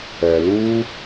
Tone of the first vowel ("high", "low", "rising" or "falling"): low